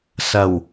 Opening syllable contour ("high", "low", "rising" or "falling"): low